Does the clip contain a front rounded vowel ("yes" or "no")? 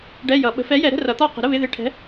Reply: no